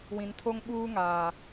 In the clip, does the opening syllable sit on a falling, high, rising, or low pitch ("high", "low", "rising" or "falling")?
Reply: low